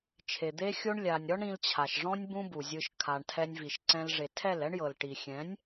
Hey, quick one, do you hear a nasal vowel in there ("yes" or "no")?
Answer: yes